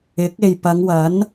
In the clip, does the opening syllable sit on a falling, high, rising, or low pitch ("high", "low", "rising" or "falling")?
rising